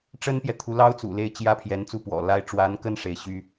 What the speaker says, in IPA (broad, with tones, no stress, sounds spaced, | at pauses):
ʈ͡ʂ ə˥ n p j ɛ˨ t̪ʰ u˧˥ l ɑ˥ ʊ̯ t͡s ṵ˨˩ l e˥˩ ɪ̯ t͡ɕ j ä˥ pʰ j ɛ˧˥ n t͡s u˥˩ p w ɔ̰˨˩ l a˥ ɪ̯ ʈ͡ʂ w a˧˥ n k ə˥˩ n ʂ e˧˥ ɪ̯ ɕ y˥